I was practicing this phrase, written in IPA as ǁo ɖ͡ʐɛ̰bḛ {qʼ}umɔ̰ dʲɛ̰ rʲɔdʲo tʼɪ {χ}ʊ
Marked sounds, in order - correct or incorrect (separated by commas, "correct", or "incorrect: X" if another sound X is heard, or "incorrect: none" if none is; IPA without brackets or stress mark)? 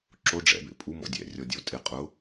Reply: incorrect: pʼ, incorrect: qʼ